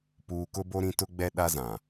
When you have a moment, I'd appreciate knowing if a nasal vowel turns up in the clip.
yes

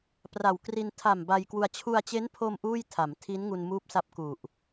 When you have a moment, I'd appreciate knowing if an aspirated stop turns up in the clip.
yes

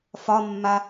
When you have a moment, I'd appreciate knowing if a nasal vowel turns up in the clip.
no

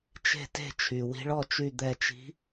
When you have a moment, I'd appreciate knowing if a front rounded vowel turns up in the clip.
yes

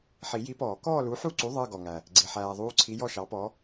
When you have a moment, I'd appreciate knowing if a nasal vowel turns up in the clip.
no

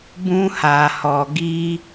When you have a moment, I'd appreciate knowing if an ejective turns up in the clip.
no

